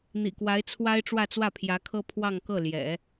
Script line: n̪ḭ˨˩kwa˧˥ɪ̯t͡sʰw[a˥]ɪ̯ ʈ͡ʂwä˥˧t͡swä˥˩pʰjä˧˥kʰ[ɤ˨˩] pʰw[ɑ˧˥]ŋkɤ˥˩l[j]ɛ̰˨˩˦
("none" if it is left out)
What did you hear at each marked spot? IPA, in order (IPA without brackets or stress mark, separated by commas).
a˥, ɤ˥, ɑ˥˧, j